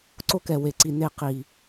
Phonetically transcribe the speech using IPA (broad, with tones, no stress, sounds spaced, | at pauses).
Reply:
ǀ o˧ k ɛ˨ w e˨ ǀ i˨ n e˨ q i˨